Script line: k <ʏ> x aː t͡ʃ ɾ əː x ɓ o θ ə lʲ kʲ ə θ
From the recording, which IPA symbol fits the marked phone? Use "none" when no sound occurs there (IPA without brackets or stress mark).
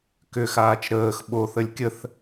ʏ